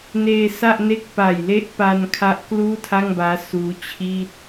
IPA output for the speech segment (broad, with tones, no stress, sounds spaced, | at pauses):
n eː˧ s a˥˩ ʔ n e˥˩ k̚ p a˨˩ j l e˥˩ ʔ p a˧ n kʰ a˦˥ ʔ k l uː˥˩ tʰ a˥˩ ŋ b aː˦˥ s uː˦˥ t͡ɕʰ iː˥˩ t̚